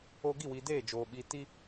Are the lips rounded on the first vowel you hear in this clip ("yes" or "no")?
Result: yes